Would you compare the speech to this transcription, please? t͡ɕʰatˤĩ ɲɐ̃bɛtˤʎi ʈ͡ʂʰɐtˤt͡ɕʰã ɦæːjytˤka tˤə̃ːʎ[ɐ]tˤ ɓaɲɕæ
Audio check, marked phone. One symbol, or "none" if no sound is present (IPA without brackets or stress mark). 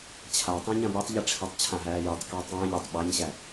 æ